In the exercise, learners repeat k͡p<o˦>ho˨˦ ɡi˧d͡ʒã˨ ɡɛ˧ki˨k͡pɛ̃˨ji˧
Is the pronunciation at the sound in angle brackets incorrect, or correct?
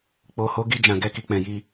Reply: incorrect